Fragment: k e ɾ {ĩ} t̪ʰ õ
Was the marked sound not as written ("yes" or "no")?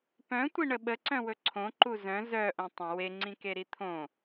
yes